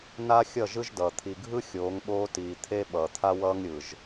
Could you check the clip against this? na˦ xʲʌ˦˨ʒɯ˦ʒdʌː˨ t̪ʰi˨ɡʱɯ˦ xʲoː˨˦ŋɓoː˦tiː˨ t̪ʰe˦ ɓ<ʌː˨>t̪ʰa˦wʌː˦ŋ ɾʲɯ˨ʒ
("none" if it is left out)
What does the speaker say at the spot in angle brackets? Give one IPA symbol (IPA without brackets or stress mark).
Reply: ʌː˨